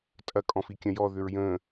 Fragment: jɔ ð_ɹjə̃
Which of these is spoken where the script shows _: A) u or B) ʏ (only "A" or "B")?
B